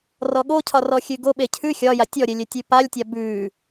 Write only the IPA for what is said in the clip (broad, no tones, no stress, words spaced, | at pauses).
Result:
rɔɠocʰɒ rɔxʲʉɡoɓe cʰʉ xʲɒja tʲɔɾʲe lʲetʲʉpalʲtʲa bʉ